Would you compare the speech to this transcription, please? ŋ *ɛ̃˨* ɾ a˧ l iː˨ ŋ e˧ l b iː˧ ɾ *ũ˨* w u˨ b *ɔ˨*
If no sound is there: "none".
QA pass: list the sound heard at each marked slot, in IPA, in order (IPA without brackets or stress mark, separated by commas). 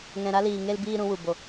ɛ̃˨, ũ˧, o˨